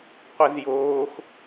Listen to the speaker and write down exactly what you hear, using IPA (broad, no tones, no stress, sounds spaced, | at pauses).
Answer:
qʷ ɛ z j oː x